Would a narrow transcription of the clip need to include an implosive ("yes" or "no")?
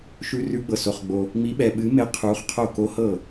yes